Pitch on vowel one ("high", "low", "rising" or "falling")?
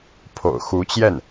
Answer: low